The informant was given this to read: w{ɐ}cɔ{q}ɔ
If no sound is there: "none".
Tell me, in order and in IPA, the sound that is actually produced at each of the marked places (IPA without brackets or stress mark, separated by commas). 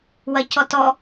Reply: ɐ, t